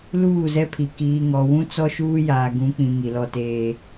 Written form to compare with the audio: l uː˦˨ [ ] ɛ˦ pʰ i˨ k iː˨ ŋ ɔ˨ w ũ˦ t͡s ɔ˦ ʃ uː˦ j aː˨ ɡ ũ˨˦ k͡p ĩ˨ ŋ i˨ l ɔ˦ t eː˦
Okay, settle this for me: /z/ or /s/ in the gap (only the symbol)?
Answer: z